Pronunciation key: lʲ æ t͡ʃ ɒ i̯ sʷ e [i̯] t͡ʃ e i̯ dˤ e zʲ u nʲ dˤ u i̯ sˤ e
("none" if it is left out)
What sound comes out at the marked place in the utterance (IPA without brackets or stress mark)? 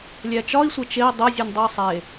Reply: none